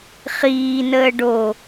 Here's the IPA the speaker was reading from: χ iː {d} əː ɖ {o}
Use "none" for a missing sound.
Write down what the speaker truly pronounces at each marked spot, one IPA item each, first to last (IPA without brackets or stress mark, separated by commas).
n, o